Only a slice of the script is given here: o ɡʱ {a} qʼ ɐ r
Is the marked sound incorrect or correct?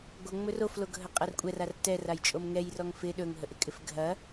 incorrect